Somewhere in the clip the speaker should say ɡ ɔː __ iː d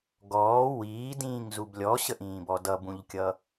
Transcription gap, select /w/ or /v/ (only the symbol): w